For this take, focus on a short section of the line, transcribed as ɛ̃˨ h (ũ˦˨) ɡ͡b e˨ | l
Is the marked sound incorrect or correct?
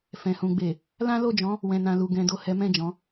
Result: incorrect